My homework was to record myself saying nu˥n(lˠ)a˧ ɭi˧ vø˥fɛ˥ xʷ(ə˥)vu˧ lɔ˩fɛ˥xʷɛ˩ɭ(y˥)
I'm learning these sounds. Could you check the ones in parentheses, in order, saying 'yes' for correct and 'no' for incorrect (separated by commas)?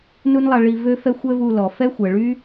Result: yes, no, yes